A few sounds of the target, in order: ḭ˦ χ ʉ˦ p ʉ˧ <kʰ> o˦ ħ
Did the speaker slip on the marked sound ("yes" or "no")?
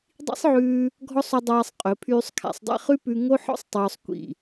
yes